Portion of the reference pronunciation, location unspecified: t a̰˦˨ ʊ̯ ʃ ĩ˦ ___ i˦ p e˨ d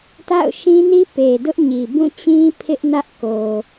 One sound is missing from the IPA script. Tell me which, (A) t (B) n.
B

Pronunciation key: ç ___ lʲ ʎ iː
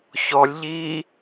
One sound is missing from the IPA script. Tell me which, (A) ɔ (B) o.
A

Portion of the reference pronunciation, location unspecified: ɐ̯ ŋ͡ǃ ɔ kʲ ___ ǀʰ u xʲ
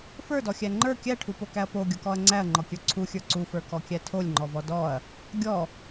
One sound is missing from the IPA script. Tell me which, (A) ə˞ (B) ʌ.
A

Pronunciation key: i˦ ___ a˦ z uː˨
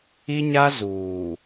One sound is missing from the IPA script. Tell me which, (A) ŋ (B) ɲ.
B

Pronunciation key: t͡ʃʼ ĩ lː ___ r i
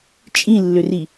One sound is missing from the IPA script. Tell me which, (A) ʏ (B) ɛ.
A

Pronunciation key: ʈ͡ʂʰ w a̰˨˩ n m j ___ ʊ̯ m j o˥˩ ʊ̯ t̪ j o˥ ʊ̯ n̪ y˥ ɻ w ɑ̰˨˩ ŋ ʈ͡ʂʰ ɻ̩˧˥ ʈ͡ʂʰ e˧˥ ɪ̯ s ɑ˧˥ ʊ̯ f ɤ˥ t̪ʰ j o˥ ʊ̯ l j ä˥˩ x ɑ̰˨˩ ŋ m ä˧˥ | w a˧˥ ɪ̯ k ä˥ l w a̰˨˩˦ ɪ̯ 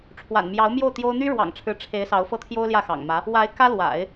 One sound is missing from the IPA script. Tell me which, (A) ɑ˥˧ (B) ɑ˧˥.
B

